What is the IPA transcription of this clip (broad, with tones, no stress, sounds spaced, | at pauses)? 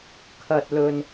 kʰ ɐ˥ t̚ l ɵ˥ n